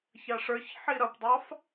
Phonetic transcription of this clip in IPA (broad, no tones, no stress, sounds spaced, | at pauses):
ç ɑ ʂ ə˞ ç ħ i ɾ ʌ p dˤ ɑ f